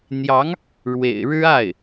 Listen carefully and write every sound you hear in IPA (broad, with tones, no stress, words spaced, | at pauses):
n̪jɑ˧˥ŋ | ɻwḛ˨˩ɪ̯ ɻɻ̩˥ a˥˩ɪ̯